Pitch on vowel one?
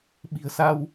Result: low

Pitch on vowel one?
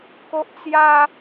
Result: high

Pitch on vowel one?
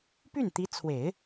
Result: falling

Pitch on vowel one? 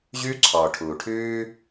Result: high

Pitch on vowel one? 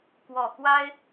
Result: low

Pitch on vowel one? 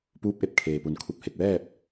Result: rising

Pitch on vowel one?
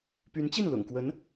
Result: rising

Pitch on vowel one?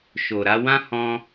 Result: low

